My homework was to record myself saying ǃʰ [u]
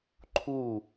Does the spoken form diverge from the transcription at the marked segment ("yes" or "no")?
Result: no